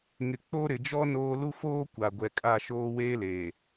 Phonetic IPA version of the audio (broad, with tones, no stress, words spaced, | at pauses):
ŋɪ˨ k͡po˦ɾɪ˨ d͡ʒɔ˦ noː˦ lu˦foː˦ kʷa˨ɡʷɛ˨ kʼa˦˨ʃoː˦ weː˦leː˨